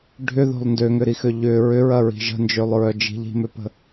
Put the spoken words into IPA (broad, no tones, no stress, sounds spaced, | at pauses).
ɖʱ ʏ ð o̤ lˠ n d ø ŋ ʏ ɾ i x ø ʎ ʏ ɹ ʏ ɹ ɐ ɹ i̤ ʒ ə̤ n d͡ʒ ø lˠ ɹ œ d͡ʒ i̤ ʎ i̤ m ø p ə̤